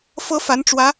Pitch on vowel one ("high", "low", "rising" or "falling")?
high